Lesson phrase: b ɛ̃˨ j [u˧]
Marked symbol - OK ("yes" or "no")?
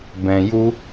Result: yes